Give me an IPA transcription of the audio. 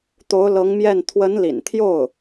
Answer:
t̪ o˧˥ ʊ̯ l ɤ˧˥ ŋ m j ɛ˥˩ n t̪ʰ w ə˧˥ n l ḭ˨˩ n t̪ʰ j o˥˩ ʊ̯

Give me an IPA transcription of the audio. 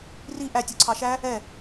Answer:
r i ʔ æ tʲ u ǀʰ ɑ ʃ æ | ɛ

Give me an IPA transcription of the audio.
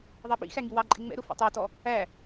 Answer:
ðˤ ɑ ɓ ḭ x æ ŋ i w ɑ ǃʼ ɪ ŋ͡m ɛ̰ ɾ ʊ f ɛ̰ tˤ ə˞ t ɔ | æ

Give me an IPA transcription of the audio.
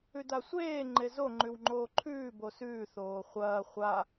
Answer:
ʉ d a sʷ eː ŋ͡ǃ e z o ŋ͡ǃ ʉ w ŋ͡ǃ oː ǃʰ ʉː b o s ʉː θ oː χʷ ɐː χʷ a

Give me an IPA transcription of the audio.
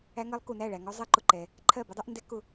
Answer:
æ˦˥ ŋ ɜ˦˥ lˠ k u˨ n æ˥˩ ɭ æ˨ ŋ ɔ˦˥ zˤ ɛ˦˥ ǃ ʊ˨ ǃ ɛ˨ | ǃʰ ɜ˥˩ b ʊ˦˥ dˤ ɛ˦˥ ʔ n d ɛ˦˥ k ʊ˥˩

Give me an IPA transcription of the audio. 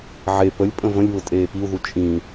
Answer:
ʕ e p ə lʲ pʼ ə̃ v ə̃ lʲ β ʊ tʼ eː p i u̯ ð u t͡ʃʼ ĩ

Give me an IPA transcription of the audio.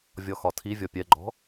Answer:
vʲ ɔ x ɒ tʰ i vʲ ɔ pʲ ɛ ɡ͡ǃ ɔ̤

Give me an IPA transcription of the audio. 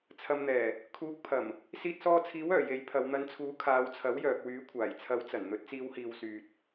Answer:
t͡sʰ ɐ˨ m n̪ ɛː˨˩ | kʰ uː˨˥ k̚ pʰ ɐ˨˩ m | s iː˧ t̚ s ɔː˧ t͡sʰ iː˨˥ w œː˨˩ j e˨˥ j pʰ ɐ˨˧ w n̪ ɐ˨˧ n t͡sʰ uː˨˥ kʰ aː˨˧ w t͡sʰ ɐ˨˥ w j œː˨ k̚ w yː˨˥ kʷʰ aː˨˩ j t͡sʰ ɐ˨˥ w t͡s ɐ˨˩ n n̪ ɵ˨˥ t̚ t͡s iː˨˧ w h iː˨ w s yː˨ t̚

